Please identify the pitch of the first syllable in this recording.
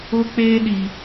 high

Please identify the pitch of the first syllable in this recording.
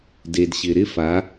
low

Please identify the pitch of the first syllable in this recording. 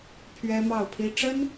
high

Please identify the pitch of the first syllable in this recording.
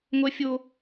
high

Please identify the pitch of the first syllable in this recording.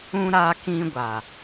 high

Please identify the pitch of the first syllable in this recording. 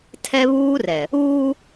high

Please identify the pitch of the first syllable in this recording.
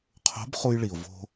rising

